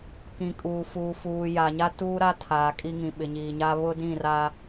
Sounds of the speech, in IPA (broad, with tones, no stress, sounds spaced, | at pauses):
k ĩ˨ kʼ uː˨ f uː˨ f uː˨ j a˨ ɲ a˦ t uː˦ ɾ a˦ tʰ aː˨ kʼ i˦ ŋ ĩ˨ ɓ ɪ˨ ɲ iː˨ ɲ a˦ β ʊ˦ d ĩ˦˨ r a˦